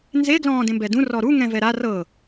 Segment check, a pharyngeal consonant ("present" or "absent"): absent